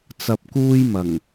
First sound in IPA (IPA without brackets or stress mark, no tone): t͡s